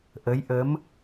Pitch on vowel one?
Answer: rising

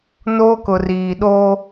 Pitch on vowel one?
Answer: high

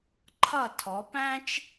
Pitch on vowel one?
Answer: falling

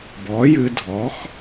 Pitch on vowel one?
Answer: rising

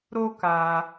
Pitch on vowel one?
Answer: high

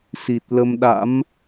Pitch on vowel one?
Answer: low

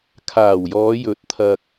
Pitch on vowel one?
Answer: low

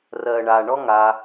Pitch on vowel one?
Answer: low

